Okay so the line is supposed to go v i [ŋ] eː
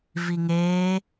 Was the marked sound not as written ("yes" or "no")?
no